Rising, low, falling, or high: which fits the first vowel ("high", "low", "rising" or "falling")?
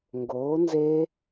rising